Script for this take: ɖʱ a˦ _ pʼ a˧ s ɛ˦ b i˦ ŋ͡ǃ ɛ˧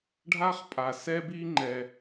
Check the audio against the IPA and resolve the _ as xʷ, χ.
χ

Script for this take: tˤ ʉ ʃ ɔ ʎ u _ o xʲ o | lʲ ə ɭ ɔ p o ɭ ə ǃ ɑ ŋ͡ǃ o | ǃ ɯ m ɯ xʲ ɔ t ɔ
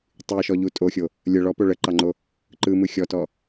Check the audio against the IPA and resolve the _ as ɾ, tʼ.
tʼ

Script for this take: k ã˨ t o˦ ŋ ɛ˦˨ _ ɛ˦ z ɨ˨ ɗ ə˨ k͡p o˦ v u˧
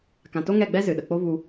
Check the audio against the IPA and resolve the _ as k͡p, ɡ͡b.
ɡ͡b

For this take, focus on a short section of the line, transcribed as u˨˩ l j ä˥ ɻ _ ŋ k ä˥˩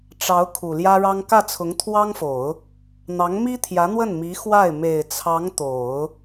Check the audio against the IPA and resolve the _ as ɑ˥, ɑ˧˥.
ɑ˥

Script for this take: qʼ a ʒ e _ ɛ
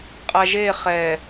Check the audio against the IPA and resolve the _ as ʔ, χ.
χ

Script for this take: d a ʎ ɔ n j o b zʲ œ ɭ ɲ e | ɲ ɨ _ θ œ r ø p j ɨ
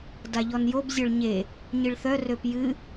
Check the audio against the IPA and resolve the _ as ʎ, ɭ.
ɭ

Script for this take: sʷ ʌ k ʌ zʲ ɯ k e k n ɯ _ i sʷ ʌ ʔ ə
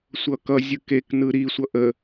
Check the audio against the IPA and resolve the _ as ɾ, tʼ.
ɾ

